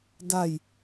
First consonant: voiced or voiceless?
voiced